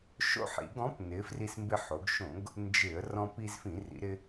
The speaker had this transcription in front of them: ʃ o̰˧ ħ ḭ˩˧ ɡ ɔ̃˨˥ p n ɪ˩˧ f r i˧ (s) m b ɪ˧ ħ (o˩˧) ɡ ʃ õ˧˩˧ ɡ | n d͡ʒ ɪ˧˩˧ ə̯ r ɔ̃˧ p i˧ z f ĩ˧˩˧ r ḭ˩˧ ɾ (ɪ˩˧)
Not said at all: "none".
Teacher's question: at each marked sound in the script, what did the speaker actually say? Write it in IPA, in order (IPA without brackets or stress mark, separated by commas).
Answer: s, o˩˧, ɪ˧